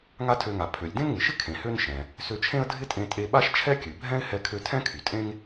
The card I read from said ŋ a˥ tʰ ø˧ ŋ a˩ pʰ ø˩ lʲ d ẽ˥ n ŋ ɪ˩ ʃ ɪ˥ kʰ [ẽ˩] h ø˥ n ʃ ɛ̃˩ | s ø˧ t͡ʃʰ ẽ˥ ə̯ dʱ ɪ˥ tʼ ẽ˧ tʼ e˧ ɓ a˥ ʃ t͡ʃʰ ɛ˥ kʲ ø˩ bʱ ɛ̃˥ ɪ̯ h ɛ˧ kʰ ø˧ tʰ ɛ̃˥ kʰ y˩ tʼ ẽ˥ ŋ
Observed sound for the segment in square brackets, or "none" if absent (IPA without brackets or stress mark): ẽ˩